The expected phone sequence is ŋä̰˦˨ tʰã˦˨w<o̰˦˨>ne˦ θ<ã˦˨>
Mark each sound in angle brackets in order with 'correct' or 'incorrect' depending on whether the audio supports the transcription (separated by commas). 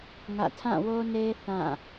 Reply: incorrect, correct